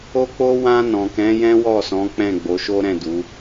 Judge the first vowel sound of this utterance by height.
mid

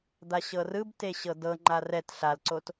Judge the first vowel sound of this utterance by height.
low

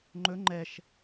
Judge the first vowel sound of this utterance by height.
mid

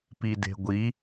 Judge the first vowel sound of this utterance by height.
high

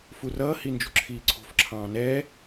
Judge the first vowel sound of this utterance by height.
high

